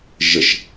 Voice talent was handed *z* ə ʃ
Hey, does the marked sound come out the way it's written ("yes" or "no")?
no